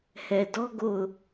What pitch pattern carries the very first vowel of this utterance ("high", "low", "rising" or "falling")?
low